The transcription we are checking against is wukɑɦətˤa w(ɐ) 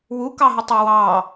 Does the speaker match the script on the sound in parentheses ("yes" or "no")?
no